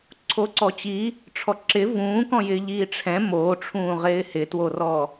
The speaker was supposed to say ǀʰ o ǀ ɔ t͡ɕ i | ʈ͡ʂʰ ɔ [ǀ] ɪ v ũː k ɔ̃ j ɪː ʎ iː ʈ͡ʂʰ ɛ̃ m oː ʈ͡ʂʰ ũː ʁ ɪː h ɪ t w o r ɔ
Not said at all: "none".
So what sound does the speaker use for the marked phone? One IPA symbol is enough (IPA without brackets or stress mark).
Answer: ǁ